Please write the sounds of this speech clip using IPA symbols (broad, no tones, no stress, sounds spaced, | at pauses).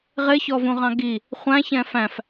ʁ ɪ ç ɔ v ũ ʁ ɑ̃ ɡ i | χʷ æ̃ ç ɛ̃ f æ̃ f